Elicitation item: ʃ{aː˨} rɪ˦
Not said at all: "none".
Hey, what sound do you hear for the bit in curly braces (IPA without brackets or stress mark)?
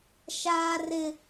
aː˦